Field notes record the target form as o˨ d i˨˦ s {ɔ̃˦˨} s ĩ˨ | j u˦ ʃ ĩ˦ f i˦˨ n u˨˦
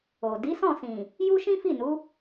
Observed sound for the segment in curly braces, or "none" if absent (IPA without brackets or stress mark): ɔ̃˦˨